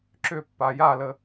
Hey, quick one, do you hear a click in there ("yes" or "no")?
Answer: yes